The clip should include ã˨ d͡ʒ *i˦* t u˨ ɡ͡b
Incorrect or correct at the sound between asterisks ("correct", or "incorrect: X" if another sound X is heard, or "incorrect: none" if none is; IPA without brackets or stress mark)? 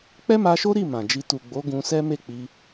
incorrect: i˧